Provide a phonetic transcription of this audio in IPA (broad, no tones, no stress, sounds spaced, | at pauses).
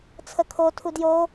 t͡sʰ ə kʰ o tʰ u d j o